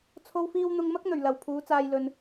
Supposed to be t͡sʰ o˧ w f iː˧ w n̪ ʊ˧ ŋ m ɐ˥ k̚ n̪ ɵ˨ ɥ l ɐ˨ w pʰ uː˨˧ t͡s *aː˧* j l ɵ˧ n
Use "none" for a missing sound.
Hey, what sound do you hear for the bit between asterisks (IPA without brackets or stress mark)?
aː˧